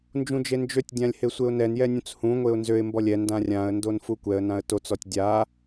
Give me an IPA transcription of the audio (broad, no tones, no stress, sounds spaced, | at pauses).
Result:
n d͡ʒ ũ d͡ʒ e n d͡ʒ ø tʲ dʲ ã lʲ h e sʷ e ʊ̯ n ɛ n j ɛ nʲ ũ t͡s h ũ ŋʷ e ʊ̯ n z ø ɪ̯ m b ɔ lʲ ɛ n d ã rʲ ã ə̯ n d o n f u kʷ ɛ ə̯ n ã ə̯ t o t͡s ɔ tʲ dʲ a